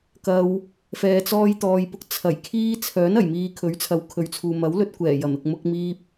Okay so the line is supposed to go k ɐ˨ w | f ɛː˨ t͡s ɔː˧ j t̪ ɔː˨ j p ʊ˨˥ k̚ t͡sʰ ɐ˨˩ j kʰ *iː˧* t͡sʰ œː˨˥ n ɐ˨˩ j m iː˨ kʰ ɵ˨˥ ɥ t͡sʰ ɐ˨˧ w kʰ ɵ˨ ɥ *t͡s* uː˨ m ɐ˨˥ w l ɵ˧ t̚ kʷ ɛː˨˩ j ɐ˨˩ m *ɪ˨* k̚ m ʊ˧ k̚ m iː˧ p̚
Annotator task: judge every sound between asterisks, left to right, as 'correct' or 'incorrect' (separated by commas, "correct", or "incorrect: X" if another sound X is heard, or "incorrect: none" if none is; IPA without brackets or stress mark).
correct, incorrect: t͡sʰ, correct